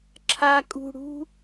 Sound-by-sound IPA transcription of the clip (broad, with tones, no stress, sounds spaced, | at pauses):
ǁʰ a˦ kʼ ṳ˦ ɽ ṳ˥